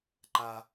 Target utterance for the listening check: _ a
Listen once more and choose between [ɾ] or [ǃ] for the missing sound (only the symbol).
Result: ǃ